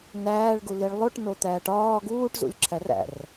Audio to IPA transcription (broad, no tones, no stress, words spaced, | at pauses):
næːɭɡuliɭ lˠoʈnot̪æːʈ ɒː ɡuːʈzṵlʲǁʰær æ̰r